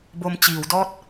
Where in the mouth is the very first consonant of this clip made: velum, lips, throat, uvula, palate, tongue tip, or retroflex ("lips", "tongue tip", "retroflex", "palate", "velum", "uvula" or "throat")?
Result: lips